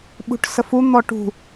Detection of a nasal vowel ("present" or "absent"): absent